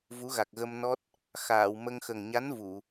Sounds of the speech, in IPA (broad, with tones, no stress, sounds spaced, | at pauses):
v u˧˥ ɣ a˨˩ k̚ ɣ ə˧ m n ɔ˦˥ t̚ | x aː˨˩˨ w m ə˧ ŋ x ə˨˩ ŋ ɲ a˧˥ n v u˨˩˨